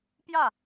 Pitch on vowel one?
falling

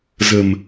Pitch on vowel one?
low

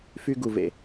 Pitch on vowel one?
high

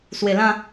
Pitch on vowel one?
low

